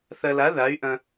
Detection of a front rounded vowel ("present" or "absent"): present